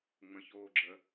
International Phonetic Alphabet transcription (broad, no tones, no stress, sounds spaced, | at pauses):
ŋ͡m ə̃ ç oː ɡ͡ǁ ə